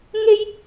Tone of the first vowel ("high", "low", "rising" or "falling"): high